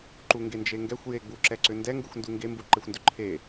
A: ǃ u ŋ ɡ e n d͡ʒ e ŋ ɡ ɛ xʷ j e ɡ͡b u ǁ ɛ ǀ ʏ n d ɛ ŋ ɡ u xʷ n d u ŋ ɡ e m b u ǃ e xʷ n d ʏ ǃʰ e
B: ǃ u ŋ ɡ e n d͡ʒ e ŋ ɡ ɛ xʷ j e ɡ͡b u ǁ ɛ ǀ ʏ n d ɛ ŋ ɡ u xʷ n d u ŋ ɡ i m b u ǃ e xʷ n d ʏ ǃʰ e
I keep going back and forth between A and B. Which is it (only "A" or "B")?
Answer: A